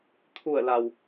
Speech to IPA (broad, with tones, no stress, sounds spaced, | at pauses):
t̪ʰ u˧˩ ə̯ l a˩ w